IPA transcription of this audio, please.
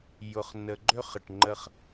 j ʊ˨ χ n ə˨ ɡ͡ǃ ø˦ χ ə˨ ʈ ŋ͡ǃ ə˦ χ

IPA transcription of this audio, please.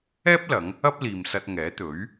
ɛː˥ p̚ l ɐ˨˧ ŋ | ɐ˥ p̚ l iː˨ m s ɐ˧ t̚ ŋ ɛː˨˥ t̪ ɵ˨˥ ɥ

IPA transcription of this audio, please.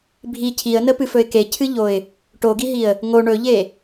bʱ i cʰ i ə̯ n ə p ɨ f ɵ ɪ̯ k e cʰ ɨ ʎ o ɪ̯ | ʈ o ɡ i ɦ i ə̯ | ŋ o ɳ ɵ ʎ e

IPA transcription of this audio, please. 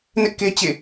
n ɪ˦ ʔ k e˦ t͡ɕ ḛ˦˨

